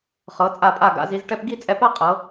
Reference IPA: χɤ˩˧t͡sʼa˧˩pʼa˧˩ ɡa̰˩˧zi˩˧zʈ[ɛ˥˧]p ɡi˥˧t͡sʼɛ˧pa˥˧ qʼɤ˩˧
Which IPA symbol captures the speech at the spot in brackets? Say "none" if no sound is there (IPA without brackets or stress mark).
ɛ˧